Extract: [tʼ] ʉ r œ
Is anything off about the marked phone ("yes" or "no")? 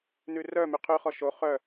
yes